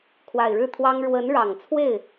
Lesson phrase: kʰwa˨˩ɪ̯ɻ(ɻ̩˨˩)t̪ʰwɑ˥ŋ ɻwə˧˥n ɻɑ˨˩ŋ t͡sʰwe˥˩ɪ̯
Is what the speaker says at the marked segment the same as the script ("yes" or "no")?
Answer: no